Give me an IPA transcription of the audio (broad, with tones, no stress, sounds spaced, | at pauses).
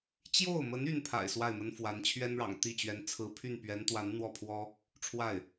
t͡ɕ j o˥˩ ʊ̯ m ə˧˥ n y˥ n pʰ a̰˨˩ ɪ̯ s w a˥˩ ɪ̯ m ə˥ n f w a˧˥ n t͡ɕʰ ɥ ɛ˥ n ɻ ɑ̰˨˩ ŋ t̪ i˥˩ t͡ɕ ɥ ɛ˧˥ n t͡sʰ ɹ̩˧˥ pʰ y˥˩ n p ɥ ɛ˧˥ n t̪ w a˧˥ n n̪ w ɔ˥˩ pʰ w ɔ˥ | ʈ͡ʂʰ w a˥˩ ɪ̯